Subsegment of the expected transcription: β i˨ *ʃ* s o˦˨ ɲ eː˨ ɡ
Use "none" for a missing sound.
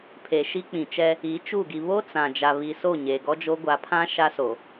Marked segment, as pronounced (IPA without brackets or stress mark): none